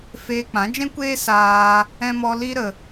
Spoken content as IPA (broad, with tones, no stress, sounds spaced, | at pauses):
f eː˧ k͡p ã˨˦ d͡ʒ ɛ̃˦ kʷ eː˦ s aː˦ | ɛ̃˧ m ɔ˧ l i˦ ɾ ə˧